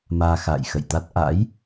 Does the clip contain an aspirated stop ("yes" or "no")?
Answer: no